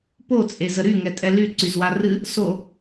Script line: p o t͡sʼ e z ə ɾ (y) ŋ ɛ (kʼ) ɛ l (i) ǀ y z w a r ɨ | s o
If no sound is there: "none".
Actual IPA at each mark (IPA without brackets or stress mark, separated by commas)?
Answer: y, tʼ, y